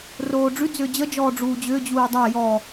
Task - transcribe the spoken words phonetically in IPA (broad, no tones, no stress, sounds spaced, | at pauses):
r oː ɖ͡ʐ ʉ d͡z ʏː d͡ʑ ə d͡ʒ ɔː ɖ͡ʐ uː d͡ʑ ʏː d͡ʑ uː dˤ a j ɔ